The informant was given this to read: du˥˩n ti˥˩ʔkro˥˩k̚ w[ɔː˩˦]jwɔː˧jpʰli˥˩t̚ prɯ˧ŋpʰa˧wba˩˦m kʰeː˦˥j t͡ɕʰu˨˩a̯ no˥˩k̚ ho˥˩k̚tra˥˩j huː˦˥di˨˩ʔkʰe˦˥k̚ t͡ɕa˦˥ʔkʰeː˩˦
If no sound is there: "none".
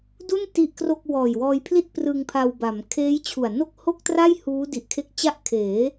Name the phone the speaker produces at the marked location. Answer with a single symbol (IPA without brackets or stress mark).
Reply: ɔː˨˩